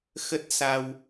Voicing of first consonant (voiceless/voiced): voiceless